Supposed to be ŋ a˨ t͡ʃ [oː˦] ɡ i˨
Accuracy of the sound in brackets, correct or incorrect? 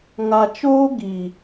correct